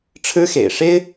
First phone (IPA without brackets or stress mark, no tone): ʈ͡ʂʰ